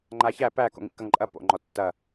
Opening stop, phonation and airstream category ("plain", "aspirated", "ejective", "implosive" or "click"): click